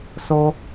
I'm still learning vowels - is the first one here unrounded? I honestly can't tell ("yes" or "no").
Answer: no